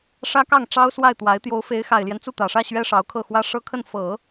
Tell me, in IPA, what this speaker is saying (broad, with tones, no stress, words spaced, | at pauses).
ʂä˥kɑ˥˩ŋ ʈ͡ʂɑ˥ʊ̯swa˥˩ɪ̯t̪wa˧˥ɪ̯ t̪jo˧˥ʊ̯fe˧˥ɪ̯xa˨˩ɪ̯ljɛ˦n t͡su˥˩t̪ä˨˩ʂä˥˩ ɕɥɛ˥ʂɑ˧˥ʊ̯kʰɤ˥˩xwä˥ ʂɤ˥kʰə˥˩nfɤ˨˩˦